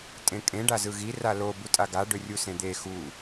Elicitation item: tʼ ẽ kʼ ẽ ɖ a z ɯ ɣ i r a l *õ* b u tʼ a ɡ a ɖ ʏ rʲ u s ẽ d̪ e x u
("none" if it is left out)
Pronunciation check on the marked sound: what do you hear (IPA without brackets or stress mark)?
o